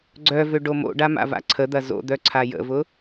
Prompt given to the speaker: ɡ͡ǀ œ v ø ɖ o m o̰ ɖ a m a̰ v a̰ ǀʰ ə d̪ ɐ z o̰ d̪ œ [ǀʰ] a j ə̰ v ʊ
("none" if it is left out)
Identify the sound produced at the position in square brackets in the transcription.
ǀʰ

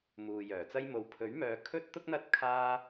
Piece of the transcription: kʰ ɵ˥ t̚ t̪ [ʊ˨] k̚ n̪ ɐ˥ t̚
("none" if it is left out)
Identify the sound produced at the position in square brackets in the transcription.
ʊ˥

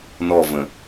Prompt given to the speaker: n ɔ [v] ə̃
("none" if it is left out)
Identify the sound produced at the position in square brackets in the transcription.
v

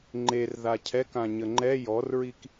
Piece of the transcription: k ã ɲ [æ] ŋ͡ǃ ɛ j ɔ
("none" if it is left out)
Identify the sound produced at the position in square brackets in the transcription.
ə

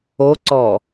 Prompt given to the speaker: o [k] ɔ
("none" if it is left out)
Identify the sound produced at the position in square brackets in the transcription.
ǀ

